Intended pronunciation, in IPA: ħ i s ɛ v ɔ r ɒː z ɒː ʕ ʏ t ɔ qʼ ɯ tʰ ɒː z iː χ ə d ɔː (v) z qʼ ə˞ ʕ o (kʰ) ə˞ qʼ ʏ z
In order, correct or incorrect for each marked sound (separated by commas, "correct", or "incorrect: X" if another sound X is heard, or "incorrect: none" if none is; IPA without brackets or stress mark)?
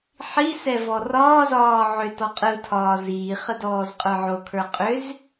incorrect: none, correct